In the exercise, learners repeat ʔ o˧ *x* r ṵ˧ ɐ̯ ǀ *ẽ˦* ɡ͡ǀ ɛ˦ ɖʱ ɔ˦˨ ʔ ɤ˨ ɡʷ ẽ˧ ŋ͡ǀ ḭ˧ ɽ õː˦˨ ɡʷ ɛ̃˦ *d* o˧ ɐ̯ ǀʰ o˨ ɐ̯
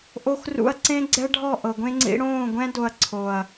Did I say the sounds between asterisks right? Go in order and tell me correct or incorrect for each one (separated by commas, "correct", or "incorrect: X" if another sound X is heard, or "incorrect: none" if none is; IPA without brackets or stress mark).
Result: correct, correct, correct